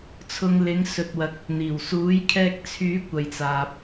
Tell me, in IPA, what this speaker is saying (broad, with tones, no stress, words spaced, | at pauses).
t͡sʰʊ˨ŋlɪ˨˧ŋ sɵ˨t̚wɐ˨k̚ | n̪iː˨˩wsuː˨˥jkʰɛː˧k̚ t͡sʰyː˨˥ kʷɐ˨jt͡saː˨p̚